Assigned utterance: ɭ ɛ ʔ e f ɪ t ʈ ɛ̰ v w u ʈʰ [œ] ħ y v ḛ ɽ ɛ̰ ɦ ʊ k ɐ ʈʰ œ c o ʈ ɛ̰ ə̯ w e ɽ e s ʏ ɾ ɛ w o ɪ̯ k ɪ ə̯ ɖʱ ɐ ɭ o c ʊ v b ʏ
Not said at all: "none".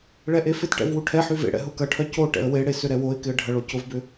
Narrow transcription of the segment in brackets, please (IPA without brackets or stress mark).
ɛ